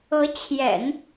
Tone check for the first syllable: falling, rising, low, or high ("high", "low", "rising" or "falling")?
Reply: rising